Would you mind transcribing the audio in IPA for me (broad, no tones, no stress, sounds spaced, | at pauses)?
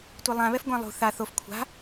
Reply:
tʷ e lˠ ã β ɛ f ɡʷ ã lˠ ṳ θ a θ o f kʷʰ a̤